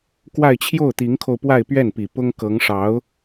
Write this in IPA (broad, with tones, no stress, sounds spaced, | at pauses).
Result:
k w a˥˧ ɪ̯ t͡ɕʰ j o˥˩ ʊ̯ t̪ i˧˥ ŋ kʰ o˧ ʊ̯ p w a˥˧ ɪ̯ p ɥ ɛ˥˩ n p i˨˩ p ʊ˥ ŋ k ɤ˧˥ ŋ ʂ ɑ˧˥ ʊ̯